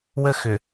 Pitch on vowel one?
high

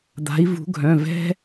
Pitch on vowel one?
rising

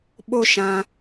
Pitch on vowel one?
high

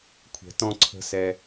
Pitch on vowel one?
low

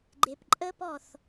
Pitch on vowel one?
low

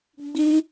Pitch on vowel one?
high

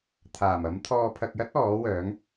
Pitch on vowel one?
low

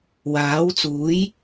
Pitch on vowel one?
rising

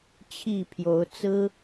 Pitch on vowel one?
falling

